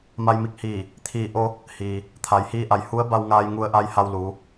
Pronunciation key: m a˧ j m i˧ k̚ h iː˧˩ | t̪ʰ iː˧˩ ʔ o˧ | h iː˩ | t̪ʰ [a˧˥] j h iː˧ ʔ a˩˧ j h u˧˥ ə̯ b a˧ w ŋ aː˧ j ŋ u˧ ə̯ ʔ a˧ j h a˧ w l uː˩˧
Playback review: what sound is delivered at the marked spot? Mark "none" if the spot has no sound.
a˩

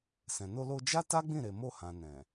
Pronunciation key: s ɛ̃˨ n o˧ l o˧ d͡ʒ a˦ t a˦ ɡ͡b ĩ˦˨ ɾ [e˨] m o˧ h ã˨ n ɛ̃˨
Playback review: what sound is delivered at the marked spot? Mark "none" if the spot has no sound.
e˨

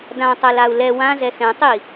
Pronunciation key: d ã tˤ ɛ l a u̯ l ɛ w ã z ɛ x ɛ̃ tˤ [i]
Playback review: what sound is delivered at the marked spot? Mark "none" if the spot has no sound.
i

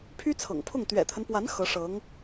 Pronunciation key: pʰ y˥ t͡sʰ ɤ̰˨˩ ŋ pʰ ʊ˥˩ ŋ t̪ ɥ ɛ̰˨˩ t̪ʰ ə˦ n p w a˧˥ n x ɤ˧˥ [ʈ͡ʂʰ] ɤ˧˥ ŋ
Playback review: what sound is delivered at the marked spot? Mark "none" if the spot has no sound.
ʂ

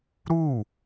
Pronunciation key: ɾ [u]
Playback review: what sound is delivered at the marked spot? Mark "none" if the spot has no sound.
u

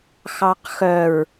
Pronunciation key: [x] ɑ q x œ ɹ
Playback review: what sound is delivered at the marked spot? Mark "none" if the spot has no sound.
x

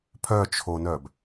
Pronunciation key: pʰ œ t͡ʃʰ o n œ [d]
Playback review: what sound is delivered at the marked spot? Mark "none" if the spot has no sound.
b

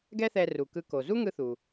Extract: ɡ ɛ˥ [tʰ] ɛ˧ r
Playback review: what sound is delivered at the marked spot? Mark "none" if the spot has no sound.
θ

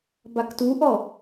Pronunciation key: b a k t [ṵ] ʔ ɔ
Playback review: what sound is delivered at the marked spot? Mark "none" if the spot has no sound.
u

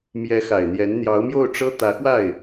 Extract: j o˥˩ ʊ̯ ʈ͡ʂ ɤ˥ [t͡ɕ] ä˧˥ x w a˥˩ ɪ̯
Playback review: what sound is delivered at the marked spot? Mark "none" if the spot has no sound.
t̪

